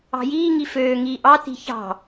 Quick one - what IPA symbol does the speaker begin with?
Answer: ɑ̤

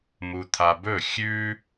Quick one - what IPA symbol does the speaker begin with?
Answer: m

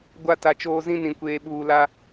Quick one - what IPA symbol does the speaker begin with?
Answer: ɡʷ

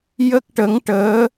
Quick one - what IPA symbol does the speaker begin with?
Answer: j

